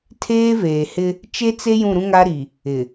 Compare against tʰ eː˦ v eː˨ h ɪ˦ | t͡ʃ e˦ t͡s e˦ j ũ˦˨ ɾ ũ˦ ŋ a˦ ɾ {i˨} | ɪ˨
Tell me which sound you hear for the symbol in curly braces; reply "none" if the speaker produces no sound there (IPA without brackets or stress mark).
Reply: i˨